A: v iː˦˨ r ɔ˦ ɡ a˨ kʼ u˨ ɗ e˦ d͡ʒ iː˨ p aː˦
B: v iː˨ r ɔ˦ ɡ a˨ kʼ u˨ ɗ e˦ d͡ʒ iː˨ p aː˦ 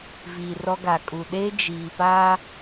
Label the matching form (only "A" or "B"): B